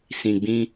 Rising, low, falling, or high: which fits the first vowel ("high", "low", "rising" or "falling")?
low